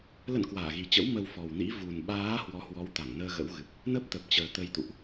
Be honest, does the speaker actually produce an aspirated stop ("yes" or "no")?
no